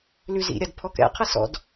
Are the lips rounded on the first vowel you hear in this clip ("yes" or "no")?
yes